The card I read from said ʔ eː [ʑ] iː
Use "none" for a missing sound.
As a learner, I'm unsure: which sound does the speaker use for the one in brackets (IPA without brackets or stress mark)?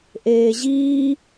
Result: ʑ